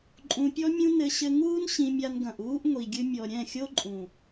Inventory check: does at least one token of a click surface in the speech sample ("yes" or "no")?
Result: yes